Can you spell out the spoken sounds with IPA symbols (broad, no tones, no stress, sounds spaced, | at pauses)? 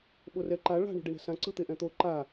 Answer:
ɓ o r ɛ ǃ a ɭ a̤ ɳ ṳ ɖ i ɳ ɛ̤ s ã ǀ ɯ t̪ e ʔ ɛ̃ t̪ o ǃ a